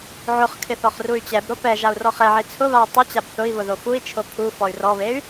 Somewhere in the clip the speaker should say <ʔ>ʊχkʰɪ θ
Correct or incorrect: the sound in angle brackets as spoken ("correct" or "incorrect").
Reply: incorrect